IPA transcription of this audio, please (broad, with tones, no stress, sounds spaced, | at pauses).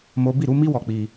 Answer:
m o˦ b i˦˨ ɾ u˨˦ m i˦ w ɔ˧ k͡p i˧